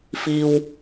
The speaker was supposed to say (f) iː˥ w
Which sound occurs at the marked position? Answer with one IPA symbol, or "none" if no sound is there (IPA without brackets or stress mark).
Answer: f